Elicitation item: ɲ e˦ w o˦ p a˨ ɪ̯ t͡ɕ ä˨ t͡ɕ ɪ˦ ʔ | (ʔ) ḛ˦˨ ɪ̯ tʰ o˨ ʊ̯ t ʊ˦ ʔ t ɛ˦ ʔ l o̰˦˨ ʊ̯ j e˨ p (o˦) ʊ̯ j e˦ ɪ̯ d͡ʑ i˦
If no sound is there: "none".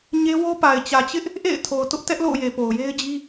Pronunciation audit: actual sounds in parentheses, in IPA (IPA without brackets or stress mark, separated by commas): ʔ, o˨